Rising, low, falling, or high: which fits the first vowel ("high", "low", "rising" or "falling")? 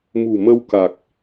low